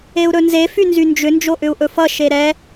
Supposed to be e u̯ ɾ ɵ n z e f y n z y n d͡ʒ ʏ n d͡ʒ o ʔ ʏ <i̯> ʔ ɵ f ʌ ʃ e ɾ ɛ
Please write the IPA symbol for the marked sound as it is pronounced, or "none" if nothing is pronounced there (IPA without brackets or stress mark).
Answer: u̯